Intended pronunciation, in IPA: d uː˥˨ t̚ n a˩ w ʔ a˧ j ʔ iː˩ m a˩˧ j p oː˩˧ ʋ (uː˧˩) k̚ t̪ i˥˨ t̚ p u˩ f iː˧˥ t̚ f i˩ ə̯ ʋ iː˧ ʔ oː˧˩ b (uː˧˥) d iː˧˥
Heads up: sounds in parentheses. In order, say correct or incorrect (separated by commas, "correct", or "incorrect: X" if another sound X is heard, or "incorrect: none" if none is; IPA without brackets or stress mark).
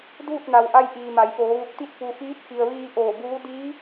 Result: incorrect: u˧˩, correct